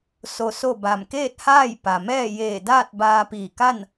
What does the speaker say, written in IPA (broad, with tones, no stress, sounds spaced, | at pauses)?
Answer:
s o˧ s o˥˨ b a˧˩ m k eː˥˨ t̚ h aː˥˨ j p a˩ m ɛː˥˨ j eː˧˩ d aː˥˨ t̚ b aː˧ p iː˧˩ k a˥˨ n